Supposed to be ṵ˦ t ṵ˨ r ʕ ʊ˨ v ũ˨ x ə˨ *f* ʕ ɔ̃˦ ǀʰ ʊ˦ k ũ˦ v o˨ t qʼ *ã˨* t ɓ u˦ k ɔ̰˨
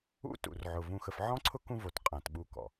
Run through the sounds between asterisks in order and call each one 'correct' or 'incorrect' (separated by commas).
correct, correct